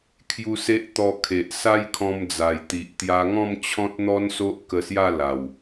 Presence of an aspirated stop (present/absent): present